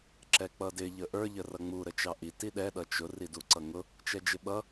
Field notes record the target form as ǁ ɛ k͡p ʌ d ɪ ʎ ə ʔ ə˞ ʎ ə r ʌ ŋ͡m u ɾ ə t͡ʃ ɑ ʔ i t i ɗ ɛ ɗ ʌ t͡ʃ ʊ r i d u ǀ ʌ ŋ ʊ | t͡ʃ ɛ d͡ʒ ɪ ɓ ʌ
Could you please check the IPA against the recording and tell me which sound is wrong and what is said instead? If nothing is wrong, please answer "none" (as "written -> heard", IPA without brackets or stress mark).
none